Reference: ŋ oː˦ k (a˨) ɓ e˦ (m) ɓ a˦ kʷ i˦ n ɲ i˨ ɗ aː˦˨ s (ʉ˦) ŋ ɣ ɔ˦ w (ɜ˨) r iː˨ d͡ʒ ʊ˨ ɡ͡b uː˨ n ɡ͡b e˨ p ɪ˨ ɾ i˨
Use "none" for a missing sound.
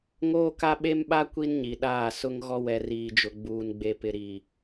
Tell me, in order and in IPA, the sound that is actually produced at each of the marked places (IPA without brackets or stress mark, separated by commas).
a˦, m, ʊ˦, ɛ˨